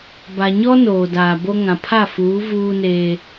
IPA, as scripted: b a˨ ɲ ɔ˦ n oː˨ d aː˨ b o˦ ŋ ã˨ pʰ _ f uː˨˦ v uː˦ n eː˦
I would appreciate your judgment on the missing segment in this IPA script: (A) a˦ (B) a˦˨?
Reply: B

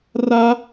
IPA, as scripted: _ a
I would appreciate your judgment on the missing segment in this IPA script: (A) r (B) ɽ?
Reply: A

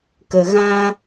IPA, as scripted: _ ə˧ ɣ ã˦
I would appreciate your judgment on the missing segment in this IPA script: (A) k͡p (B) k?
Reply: B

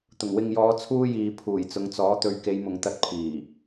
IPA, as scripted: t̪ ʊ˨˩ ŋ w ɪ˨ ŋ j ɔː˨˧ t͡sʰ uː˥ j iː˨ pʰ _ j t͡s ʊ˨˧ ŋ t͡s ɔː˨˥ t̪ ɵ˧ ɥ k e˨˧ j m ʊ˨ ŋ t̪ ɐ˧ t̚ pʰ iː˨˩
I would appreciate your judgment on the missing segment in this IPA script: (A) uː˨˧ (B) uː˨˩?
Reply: B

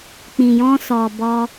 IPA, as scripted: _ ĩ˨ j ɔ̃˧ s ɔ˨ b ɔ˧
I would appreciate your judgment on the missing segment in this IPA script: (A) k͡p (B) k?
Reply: A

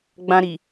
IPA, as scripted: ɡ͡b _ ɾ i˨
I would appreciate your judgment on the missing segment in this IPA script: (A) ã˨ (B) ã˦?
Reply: B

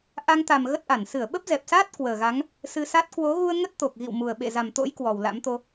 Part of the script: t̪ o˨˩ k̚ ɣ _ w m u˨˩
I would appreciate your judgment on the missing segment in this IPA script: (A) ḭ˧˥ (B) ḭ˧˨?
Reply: B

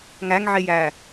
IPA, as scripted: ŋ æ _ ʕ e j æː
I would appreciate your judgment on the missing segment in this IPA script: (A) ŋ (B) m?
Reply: A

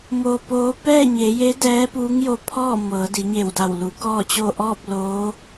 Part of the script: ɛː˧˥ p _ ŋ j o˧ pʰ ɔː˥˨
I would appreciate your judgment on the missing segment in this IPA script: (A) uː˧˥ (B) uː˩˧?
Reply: A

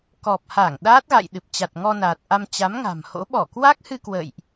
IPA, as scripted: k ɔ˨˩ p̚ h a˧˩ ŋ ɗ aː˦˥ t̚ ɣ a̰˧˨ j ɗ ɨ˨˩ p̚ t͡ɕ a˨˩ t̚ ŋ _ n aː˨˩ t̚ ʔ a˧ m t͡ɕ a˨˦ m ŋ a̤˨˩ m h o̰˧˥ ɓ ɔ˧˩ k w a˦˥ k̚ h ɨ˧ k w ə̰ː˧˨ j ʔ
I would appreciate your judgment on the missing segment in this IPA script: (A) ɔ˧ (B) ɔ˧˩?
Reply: A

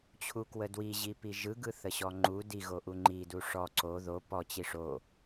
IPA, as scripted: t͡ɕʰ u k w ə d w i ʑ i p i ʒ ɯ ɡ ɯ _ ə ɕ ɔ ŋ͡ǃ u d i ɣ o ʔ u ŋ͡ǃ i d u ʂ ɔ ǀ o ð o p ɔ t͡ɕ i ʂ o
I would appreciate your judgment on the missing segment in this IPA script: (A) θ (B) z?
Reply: A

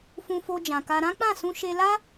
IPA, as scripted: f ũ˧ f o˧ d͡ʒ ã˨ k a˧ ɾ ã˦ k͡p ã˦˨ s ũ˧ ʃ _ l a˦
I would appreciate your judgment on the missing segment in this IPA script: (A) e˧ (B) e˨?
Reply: A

